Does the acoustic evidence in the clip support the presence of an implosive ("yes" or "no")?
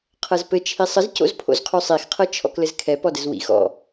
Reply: no